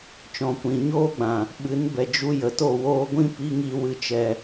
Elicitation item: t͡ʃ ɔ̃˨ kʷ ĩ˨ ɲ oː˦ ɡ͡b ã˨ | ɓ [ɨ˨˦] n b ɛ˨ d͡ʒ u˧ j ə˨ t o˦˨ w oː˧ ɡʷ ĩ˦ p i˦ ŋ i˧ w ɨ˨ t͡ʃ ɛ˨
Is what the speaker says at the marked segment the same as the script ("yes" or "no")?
yes